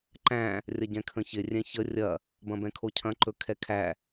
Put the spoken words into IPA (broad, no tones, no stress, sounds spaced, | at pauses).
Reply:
ǃ æ̃ | rʲ ɐ ɟ ɛ̃ kʰ ə̃ ç ɪ rʲ ɛ̃ ç ə rʲ ɐ | b ɐ̃ b ɛ̃ kʰ o cʰ ɐ̃ ǃ ɵ kʰ ɛ kʰ æ